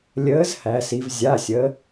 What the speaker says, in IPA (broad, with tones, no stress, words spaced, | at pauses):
lʲəː˨˥z hæ˩˧si˩˧v zʲa˩˧˩sʲə˩˧